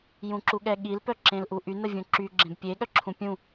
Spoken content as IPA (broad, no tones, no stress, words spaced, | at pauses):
jũǁuɠɛɠil pœǁẽlʔuʔy nəvʲũǁy ɡ͡ǁẽbpʲe ɠœǁʰũpʲũ